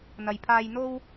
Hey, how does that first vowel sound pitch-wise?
low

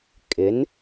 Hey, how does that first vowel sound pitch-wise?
rising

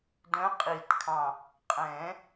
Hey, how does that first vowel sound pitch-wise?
rising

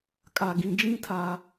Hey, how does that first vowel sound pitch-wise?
low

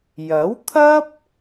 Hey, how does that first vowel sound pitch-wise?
rising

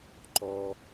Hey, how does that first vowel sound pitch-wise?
low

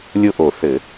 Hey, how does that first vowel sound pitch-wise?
falling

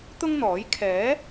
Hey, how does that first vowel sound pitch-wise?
high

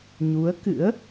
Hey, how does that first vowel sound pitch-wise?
rising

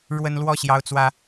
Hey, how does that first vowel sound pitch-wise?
high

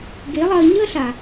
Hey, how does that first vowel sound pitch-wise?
rising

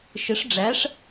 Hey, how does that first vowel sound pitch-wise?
rising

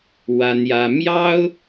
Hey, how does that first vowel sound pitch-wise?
high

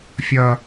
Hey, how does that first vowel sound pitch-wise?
high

